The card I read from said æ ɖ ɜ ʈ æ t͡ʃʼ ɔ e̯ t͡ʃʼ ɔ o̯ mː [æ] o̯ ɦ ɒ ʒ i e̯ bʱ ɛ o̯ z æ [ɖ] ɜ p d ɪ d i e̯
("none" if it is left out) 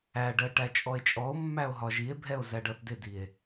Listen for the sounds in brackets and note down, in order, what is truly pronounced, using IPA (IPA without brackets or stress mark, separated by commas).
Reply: æ, ɖ